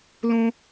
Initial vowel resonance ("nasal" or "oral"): nasal